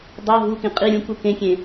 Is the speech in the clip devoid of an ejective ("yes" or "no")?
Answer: no